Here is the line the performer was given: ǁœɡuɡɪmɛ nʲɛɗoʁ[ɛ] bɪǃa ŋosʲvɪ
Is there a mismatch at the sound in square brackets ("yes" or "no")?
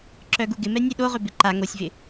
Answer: yes